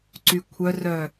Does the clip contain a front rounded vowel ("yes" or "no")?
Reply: yes